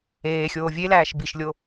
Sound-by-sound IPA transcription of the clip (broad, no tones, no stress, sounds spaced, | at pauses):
eː xʲ oː vʲ e l æː ʃ b i ʃ lʲ o